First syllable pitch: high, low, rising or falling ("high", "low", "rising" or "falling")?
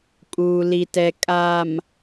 low